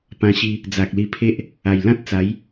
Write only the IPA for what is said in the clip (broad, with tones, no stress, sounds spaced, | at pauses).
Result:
p ã˧ ɕ i˧ | d͡z a˨ k̚ l i˧ pʰ e˦ ʔ | a˨˩ j l ã˦ t̚ t͡s a˨˦ j